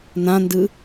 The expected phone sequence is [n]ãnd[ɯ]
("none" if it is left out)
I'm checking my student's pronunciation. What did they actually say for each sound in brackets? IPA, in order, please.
n, ɯ

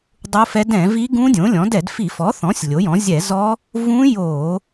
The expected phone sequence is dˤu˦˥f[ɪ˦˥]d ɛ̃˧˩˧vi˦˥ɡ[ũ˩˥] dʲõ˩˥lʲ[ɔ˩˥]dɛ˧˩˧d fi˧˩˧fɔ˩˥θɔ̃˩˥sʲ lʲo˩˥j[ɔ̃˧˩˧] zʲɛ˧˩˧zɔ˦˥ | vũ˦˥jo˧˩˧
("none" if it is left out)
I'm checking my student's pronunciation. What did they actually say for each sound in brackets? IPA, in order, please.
ɛ˦˥, ũ˦˥, ɔ̃˩˥, ɔ̃˩˥

